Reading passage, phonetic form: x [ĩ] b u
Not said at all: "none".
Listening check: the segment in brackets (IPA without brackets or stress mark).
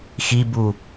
i